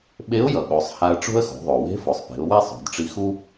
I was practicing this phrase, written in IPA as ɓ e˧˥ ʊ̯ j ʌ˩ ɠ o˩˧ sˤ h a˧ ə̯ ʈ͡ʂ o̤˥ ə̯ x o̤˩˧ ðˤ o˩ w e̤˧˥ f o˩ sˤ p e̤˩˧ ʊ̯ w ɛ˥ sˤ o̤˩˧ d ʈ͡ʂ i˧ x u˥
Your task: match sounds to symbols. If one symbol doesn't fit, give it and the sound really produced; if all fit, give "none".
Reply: none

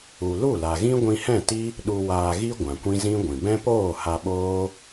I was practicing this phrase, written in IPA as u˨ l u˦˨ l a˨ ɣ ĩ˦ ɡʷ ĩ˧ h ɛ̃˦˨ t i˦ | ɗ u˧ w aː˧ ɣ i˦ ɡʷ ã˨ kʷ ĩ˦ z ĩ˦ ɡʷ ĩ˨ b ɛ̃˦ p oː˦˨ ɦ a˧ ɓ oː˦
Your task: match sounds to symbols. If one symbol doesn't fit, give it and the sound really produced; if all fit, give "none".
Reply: ɦ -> h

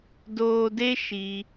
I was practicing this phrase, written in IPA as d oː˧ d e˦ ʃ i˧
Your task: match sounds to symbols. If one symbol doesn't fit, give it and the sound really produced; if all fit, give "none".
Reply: none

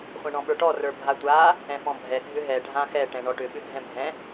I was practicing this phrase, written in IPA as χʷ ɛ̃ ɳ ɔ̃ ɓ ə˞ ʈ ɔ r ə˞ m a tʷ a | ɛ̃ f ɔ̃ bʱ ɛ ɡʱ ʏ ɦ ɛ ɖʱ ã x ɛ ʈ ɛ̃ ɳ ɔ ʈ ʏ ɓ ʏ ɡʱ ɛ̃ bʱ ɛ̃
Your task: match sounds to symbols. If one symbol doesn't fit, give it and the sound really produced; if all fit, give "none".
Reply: m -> bʱ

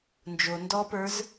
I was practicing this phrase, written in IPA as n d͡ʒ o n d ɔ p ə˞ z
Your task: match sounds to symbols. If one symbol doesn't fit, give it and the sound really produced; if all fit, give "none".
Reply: none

